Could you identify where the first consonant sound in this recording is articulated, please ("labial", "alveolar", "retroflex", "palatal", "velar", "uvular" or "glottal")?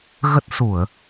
velar